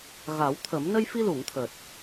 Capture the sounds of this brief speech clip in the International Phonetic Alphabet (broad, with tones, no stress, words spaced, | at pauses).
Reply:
ɣa˨˩˦wt̪ʰə˨˩˦m nə˧jfi˧lu˨˩˨ŋt̪ʰəː˨˩t̚